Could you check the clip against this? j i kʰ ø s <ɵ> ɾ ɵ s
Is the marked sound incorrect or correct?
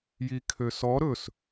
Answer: incorrect